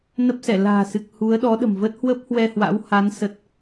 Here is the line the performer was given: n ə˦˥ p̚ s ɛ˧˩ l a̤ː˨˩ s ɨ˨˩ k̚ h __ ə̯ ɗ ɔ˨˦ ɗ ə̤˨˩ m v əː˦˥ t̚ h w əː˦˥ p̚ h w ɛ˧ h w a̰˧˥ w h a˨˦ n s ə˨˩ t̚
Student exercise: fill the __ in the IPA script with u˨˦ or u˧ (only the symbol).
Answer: u˨˦